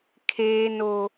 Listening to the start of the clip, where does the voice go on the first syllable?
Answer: high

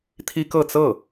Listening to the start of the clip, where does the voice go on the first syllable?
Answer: high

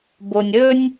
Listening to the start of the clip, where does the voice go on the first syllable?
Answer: low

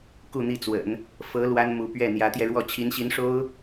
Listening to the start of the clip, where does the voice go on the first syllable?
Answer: falling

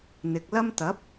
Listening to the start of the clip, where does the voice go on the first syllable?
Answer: low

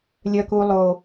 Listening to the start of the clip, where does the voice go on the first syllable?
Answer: low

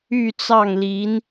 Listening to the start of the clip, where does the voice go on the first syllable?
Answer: falling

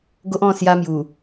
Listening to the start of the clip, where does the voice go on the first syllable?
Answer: high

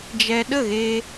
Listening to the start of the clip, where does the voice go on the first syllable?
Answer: low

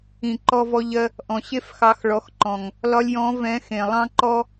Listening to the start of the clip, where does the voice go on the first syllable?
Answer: low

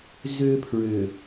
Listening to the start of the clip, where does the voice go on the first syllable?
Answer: high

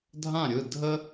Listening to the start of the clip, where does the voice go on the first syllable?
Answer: falling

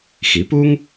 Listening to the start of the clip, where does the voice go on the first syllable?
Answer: rising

